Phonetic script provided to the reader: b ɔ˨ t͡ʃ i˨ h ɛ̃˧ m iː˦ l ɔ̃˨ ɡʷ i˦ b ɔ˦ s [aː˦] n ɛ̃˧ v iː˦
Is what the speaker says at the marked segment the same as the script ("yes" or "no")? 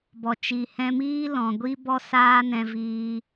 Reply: yes